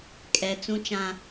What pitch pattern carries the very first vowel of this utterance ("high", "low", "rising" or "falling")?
low